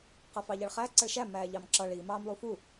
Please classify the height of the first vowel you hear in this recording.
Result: mid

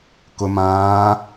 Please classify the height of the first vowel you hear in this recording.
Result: high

